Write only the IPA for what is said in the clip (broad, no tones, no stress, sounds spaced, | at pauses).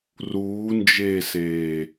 r uː n d͡ʒ eː s eː